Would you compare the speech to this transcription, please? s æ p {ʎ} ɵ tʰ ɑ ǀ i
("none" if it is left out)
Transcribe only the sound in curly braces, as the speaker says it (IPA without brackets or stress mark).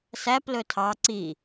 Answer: l